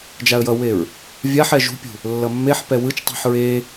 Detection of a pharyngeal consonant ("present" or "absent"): present